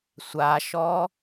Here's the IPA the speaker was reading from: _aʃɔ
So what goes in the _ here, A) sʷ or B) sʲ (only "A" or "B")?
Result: A